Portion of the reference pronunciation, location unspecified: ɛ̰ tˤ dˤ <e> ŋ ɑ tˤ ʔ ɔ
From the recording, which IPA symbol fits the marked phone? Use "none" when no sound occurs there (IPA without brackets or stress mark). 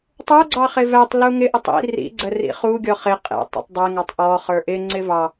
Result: ɛ